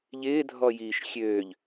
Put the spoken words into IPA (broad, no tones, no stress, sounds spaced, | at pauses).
ʎ ɪː dʱ ɔ j iː ʃ xʲ øː ʎ